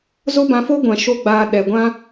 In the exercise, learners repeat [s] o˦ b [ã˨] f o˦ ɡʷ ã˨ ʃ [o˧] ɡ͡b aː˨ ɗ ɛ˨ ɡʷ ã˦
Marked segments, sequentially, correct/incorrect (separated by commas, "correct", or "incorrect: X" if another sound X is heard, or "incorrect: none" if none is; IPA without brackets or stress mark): incorrect: z, incorrect: ã˧, correct